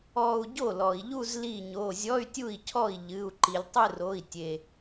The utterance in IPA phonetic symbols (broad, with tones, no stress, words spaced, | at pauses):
ɔ˥˧u̯ ɟo˥˩lɔ˩i̯ʎu˥˧z li˥˩ɲo˩˧˩ zʲɔ˧˥˧y̯tʲu˥˩i̯cʰɔ˥˩i̯ ʎɨ˩˧˩u̯ ǃi˩lʲ tˤɨ˥˧r o˩˧˩i̯tʲe˩